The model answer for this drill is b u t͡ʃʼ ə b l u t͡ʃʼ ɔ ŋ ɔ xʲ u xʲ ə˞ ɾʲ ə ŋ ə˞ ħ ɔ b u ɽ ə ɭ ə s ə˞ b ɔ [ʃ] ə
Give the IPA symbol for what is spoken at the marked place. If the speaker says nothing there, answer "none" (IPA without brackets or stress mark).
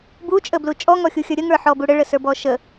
ʃ